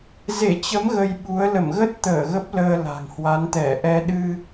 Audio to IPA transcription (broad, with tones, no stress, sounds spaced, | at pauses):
z e˧˩ t͡ɕ ə˨˦ m ɣ ə˧ j ɓ u˨˦ ə̯ l ə˧˩ m ɣ ə˦˥ t̚ t̪ əː˧˩ ɣ ə˦˥ p̚ l əː˧ l a̤˨˩ ŋ h w a˨˦ n t̪ ɛ˧˩ ʔ ɛ˧ ɗ ɨ˧